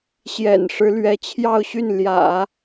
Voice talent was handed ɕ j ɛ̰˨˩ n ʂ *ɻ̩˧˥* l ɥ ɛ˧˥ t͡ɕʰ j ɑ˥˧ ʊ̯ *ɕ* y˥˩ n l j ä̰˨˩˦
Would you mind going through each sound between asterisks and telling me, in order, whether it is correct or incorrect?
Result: correct, correct

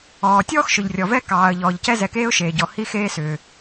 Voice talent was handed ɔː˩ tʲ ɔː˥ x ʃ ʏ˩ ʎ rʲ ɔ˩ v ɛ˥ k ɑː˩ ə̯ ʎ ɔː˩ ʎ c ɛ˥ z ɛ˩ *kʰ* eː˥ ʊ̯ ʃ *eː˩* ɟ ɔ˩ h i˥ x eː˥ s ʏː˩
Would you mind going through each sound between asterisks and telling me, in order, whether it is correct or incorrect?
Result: incorrect: k, correct

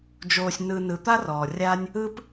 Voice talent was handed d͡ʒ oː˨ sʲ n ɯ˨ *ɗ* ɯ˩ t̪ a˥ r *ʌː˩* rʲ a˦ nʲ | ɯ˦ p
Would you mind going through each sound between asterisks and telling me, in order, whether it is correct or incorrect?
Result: incorrect: n, incorrect: ɔː˩

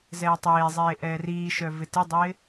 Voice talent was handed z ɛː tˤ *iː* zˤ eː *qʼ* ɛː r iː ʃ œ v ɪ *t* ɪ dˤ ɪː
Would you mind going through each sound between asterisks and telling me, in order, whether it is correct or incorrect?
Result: incorrect: eː, incorrect: ʔ, correct

